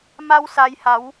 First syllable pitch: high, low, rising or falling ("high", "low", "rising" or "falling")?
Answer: high